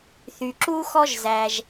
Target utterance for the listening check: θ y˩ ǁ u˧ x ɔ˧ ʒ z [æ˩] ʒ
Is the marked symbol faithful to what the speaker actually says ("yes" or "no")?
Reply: yes